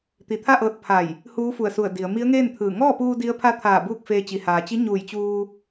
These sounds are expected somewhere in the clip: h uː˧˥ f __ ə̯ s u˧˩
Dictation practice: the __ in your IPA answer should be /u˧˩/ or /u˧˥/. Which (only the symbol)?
u˧˩